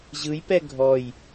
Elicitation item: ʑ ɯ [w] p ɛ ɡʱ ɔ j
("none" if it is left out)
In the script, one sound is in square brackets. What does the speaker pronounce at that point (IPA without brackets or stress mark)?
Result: j